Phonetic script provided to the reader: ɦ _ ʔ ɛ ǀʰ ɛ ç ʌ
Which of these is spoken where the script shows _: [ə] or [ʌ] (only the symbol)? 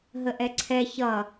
ə